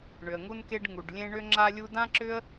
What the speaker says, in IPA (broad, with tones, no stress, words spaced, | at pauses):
ɳʏ˩ə̯ŋu˧nke˧ɖ ŋu˩ɖlʲẽ˧ ɳʏ˧ŋ͡ǁa˧lʲu˧ dã˥ǁʏ˥ə̯